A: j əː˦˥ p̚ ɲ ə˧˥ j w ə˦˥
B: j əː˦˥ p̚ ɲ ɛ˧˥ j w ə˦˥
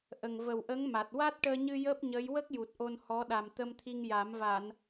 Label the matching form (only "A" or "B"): A